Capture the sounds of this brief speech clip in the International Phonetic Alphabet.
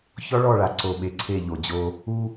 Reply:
ç ɔ˦ ɭ ɔ˦˨ ɭ a˨ ǀ o˨ ɓ e˨ ǀʰ e˦˨ ʎ o˨ d͡ʑ o˦ | u˦

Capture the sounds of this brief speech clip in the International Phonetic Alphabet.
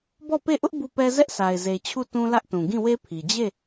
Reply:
b ɔ˦˨ p e˦˨ ʔ ʊ˦ ʔ b u˦˨ p ɛ˦ z ɛ˦ ʔ s a˨ ɪ̯ z e˨ t͡ɕʰ u˦˨ t ũ˦ l ä˦ ʔ t ũ˨ ɡ ĩ˦˨ w e˦ pʰ i˨ d͡ʑ e˦˨

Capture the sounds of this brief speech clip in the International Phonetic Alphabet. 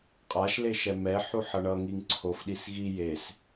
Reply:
qʼ a ʃ l e ʃ ɛ m ɛ ħ u ħ ʌ ɳ ʌ ŋ i ŋ ǀʰ o f ɗ i s ɣ i j e s

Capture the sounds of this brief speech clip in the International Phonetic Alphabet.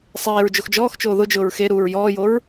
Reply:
sˤ eː ɹ d͡ʒ o x d͡ʒ ɔː x t͡ʃ oː ð ʊ d͡ʒ ʊː ɹ x e ɾ uː ɹ j ɔː j o ɹ

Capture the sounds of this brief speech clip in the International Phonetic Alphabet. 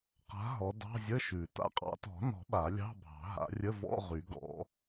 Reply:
q a̤˨˦ ɦ ɔ˨˦ d ɑ̤˧˥˧ zʲ ə˧˥˧ ʃ ʉ˨˩˦ t a̰˨˦ qʼ ɑ̰˨˩˦ t ɔ̤˨˩˦ n ɔ̤˨˩˦ ɓ a˨˩˦ lʲ ɑ̤˧˥˧ bʱ ɑ̤˨˩˦ ɦ a̰˨˦ rʲ ə˧˥˧ v ɔ̰˧˥˧ ʁ y˨˩˦ ɡ ɔ̰˨˦

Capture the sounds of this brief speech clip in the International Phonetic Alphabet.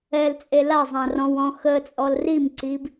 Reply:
ɛ l t͡sʼ e l a zˤ ã r ɔ̃ w ɔ̃ x ə t͡sʼ ɔ l r i m ǀ i b

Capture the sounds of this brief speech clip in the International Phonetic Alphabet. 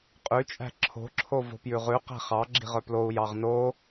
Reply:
qʼ ʉ t͡ʃʼ æ̤ ǁʰ o̤ ǁʰ o v o̤ p j ʉ ʁ ʉ q æ̤ χ ɑ ɡ͡ǁ i̤ ʁ œ p l o u̯ j ɑ ʁ n o

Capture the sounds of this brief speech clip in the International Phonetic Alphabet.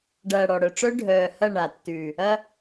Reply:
ɖ ɐː˨ ɽ ɔ˨ ɽ œ˨ ʈ͡ʂ œ˦ ɖʱ œː˨ h ɐ˦˨ ɳ a˨ tː ʉ˨ | ɐ˦

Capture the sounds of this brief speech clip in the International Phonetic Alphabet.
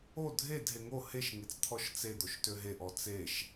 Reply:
o dʱ e d ɦ e ŋ o h e ʃ ŋ e t͡s t̪ʰ ɔ ʃ t͡s e d̪ o ʃ t ø ɦ e ʔ ɔ t͡s e ʃ

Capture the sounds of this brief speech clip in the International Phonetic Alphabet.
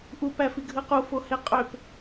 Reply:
ʔ u p æ f i ɡʱ ɯ q u f o h e qʼ ø p

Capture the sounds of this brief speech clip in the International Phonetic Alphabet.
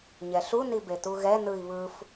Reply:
ɲ ɛ ɬ u n i b e t u ɣ ɛ n ɯ i̯ β ɯ f

